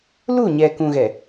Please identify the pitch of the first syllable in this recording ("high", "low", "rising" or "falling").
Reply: falling